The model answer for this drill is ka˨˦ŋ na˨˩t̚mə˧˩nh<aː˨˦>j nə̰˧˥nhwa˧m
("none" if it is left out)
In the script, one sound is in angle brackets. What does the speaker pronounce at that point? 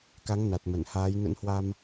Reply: aː˨˦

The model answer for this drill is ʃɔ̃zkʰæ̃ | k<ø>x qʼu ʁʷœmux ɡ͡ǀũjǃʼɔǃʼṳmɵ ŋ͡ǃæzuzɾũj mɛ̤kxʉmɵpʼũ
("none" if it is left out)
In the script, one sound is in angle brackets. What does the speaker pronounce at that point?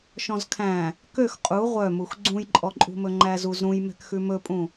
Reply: ø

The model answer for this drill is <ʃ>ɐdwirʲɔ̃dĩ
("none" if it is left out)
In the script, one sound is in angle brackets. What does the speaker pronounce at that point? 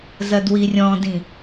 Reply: z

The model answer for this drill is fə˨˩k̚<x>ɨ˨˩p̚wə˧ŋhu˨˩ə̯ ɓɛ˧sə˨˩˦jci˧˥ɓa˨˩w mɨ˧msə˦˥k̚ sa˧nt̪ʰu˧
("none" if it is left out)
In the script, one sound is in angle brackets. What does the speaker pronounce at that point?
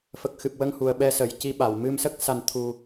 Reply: x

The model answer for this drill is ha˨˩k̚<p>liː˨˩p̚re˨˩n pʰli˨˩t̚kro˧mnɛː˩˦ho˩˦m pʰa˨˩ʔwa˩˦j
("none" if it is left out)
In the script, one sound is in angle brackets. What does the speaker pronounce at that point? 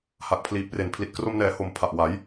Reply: pʰ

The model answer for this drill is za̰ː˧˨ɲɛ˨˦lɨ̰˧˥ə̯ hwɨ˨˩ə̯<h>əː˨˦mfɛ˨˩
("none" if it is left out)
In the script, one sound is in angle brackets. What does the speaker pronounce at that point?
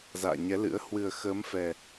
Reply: x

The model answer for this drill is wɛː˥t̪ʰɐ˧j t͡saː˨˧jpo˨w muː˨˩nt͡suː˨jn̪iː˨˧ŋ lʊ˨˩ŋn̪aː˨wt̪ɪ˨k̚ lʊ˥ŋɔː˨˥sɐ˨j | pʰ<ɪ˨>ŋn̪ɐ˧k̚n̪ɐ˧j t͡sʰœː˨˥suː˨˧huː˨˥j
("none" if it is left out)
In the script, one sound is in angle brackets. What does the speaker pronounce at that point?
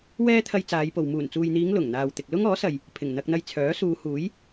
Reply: ɪ˨˩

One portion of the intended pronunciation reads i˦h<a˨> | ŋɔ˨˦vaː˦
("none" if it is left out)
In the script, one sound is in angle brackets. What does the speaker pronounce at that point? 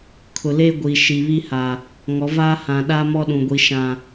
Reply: a˨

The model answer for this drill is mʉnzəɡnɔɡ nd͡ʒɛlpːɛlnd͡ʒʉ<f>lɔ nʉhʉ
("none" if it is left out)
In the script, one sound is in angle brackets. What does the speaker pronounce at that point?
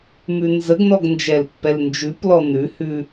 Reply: p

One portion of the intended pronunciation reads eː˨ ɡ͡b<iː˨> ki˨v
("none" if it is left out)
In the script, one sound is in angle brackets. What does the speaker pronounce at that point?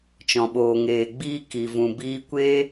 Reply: iː˧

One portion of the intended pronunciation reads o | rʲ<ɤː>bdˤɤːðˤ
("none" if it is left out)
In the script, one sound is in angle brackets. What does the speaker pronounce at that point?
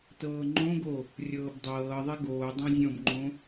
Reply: ɤː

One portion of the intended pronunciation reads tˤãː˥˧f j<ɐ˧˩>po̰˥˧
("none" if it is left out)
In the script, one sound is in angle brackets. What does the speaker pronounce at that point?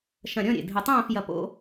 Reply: ɐ˧˩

